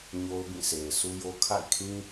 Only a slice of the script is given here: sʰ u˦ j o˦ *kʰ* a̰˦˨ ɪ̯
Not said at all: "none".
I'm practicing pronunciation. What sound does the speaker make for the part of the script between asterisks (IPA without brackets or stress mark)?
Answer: kʰ